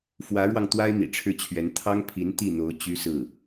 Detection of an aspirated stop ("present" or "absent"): present